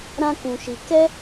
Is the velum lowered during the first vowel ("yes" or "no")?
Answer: yes